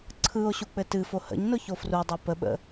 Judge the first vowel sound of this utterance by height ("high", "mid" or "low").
high